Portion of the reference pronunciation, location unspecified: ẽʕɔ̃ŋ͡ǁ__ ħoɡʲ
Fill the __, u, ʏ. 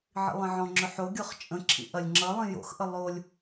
ʏ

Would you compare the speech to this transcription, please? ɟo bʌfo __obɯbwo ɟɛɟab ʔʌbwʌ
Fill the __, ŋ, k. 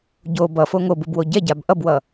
ŋ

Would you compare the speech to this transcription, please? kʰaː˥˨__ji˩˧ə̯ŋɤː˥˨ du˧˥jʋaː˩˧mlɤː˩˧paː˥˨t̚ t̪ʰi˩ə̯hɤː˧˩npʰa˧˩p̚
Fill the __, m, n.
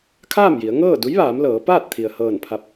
m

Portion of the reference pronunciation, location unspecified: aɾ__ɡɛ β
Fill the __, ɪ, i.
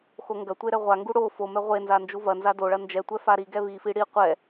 i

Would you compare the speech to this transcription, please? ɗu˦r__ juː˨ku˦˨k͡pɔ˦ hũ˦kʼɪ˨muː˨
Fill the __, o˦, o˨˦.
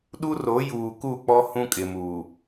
o˨˦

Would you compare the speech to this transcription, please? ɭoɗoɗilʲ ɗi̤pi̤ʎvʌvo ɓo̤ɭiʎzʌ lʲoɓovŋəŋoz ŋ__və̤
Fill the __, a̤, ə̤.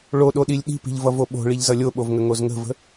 ə̤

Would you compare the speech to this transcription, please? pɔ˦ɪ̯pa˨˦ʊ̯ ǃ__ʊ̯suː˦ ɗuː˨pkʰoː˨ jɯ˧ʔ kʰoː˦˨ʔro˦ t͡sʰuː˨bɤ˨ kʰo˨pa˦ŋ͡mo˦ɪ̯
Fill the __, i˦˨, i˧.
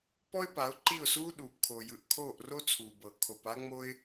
i˦˨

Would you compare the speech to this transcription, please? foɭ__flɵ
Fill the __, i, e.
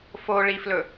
i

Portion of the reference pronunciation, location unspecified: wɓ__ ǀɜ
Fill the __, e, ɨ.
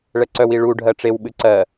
ɨ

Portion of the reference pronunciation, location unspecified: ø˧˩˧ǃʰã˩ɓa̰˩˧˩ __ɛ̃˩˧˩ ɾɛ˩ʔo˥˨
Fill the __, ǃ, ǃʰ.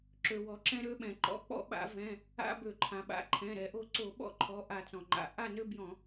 ǃʰ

